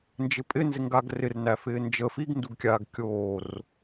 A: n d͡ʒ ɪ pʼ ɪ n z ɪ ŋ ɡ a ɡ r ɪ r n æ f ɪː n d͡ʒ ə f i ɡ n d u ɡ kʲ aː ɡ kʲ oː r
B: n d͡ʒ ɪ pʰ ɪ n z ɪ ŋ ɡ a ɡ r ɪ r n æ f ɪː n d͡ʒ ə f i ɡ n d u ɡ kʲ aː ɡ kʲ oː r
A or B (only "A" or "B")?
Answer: A